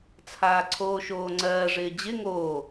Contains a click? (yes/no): yes